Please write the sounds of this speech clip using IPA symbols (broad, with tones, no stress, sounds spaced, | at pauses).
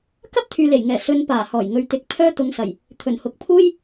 k ɐ˥ p̚ t̪ʰ yː˨ l e˨˩ j ŋ ɛː˨˩ s ɵ˧ n p aː˨˩ h ɔː˨˩ j ŋ ɵ˨ ɥ t̪ ɪ˨˥ k̚ pʰ œː˥ t̪ ʊ˨˧ ŋ s ɐ˨˩ j | t̪ʰ ɵ˨˩ n h ʊ˨˥ k̚ pʰ uː˥ j